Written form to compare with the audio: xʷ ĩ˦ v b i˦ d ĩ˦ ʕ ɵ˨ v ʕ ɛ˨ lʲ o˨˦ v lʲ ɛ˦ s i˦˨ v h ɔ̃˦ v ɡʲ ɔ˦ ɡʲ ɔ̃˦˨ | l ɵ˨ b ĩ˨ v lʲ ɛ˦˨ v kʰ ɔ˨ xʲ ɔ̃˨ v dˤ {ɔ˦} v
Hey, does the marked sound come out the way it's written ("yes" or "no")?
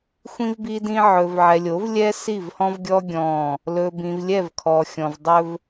no